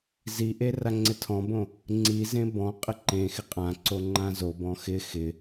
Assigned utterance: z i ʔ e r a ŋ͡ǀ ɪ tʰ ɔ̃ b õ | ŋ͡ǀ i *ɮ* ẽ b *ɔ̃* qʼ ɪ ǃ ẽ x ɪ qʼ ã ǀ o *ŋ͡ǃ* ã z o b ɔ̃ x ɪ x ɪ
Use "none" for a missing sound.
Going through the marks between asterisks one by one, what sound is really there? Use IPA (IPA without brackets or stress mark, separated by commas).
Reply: z, ɔ̃, ŋ͡ǃ